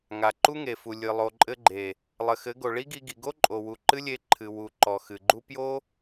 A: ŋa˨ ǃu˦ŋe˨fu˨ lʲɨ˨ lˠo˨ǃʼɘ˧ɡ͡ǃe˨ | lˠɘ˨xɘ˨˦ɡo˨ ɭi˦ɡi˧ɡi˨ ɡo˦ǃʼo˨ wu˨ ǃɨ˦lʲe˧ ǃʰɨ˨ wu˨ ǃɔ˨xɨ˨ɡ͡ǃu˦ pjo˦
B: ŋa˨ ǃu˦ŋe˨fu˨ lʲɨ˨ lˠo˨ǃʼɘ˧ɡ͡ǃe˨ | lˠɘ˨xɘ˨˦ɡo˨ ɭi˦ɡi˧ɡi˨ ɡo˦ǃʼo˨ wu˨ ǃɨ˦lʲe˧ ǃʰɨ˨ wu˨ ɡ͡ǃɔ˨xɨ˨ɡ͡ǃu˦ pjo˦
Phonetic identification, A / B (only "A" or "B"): A